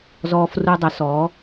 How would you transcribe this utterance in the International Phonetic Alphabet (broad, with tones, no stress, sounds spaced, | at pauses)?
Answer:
z ɔː˧ f r u˧ dˤ ə˨˦ s ɔ˨˦